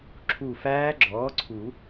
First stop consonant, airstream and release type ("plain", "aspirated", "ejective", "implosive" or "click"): click